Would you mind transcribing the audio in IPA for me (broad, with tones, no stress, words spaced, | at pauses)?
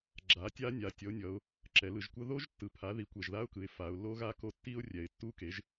ɡ͡ǁa˩˥ tʲa˦˥nʲa˩˧ tʲʌ˩˥ʊ̯nʲʌ˩˧ʊ̯ | ǁɛ˩˧lɯ˩˧ʒkʷʌ˦˥ ðo˦˥ʒtːɯ˨˩pʰa˩˥ ði˩˧kʷɛ˨˩ʒða˦˥ʊ̯kɯ˩˧ɪ̯ fa˩˧ʊ̯lːo˦˥ɣa˦˥ko˦˥ tːi˦˥ʊ̯rʲɛ˨˩ɪ̯tːu˦˥ke˩˥ʒ